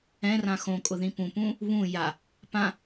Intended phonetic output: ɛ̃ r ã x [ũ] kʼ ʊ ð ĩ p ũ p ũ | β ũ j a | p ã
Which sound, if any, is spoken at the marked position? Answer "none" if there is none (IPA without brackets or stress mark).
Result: õ